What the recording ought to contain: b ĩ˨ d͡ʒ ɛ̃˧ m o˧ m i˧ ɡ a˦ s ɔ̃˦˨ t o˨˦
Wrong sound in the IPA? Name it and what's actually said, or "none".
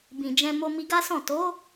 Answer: none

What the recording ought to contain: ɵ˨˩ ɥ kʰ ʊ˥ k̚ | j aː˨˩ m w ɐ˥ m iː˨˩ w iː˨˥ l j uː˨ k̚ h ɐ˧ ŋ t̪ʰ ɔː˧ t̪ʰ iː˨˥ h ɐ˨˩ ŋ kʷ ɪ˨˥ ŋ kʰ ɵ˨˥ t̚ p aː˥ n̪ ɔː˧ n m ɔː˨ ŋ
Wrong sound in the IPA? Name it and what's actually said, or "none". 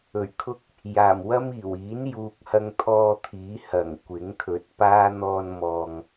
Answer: l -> n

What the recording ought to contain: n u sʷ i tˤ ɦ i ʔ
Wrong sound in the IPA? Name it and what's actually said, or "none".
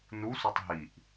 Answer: none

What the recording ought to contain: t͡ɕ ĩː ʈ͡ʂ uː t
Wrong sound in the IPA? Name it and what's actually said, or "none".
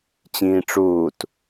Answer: none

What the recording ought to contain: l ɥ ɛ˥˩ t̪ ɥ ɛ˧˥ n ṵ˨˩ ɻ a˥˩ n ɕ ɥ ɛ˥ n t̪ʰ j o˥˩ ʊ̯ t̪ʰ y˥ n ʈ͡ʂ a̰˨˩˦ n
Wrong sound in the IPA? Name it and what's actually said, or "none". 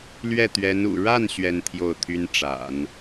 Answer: none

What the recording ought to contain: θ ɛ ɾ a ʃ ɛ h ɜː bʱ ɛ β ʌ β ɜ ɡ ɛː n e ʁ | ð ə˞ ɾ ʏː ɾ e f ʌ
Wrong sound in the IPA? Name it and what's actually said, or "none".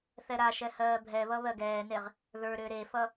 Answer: none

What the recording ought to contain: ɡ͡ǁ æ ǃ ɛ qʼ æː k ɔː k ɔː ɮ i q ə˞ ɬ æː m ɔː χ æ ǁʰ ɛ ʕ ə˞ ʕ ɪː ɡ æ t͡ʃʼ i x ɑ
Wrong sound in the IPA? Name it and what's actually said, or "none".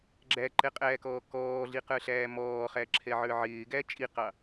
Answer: x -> q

